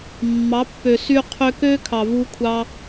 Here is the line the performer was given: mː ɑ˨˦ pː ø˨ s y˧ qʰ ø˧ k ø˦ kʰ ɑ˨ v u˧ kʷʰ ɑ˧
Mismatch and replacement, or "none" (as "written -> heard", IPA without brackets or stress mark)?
none